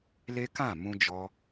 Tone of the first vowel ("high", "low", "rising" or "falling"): high